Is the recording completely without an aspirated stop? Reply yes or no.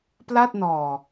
yes